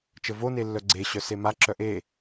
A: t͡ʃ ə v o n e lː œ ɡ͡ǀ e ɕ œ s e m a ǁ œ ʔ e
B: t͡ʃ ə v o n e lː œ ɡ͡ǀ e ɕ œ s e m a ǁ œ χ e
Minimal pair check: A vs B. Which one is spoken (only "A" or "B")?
A